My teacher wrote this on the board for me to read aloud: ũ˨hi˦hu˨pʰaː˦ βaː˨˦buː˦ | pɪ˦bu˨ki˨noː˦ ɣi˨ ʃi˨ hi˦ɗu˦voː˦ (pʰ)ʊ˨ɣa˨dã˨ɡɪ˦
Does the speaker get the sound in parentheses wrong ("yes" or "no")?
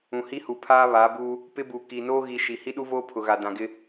no